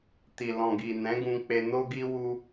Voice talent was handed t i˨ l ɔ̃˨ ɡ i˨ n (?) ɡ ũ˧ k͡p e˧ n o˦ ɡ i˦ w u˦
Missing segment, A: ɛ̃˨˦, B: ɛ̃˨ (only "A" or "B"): A